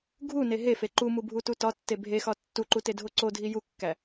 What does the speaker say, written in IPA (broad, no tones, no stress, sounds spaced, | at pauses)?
ɡʱ u n e ɦ e f e ǃ u m u bʱ u t u t ɒ tː e bʱ e x ɒ tː u ǃ u t e dʱ o ǀ o dʱ i j u kː æ